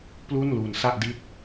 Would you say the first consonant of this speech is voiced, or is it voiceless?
voiceless